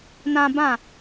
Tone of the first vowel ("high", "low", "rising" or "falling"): high